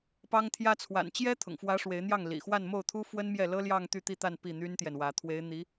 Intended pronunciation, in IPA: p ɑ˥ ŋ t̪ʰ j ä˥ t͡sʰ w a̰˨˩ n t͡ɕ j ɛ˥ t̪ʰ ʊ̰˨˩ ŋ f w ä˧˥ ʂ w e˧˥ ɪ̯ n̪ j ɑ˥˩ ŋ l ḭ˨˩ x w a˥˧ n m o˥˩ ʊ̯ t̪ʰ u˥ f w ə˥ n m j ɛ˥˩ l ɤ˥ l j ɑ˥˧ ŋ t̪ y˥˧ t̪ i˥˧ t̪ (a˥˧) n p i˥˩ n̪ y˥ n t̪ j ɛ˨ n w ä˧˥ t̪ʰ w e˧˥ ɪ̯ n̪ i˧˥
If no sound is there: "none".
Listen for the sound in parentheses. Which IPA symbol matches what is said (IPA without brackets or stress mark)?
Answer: a˥˧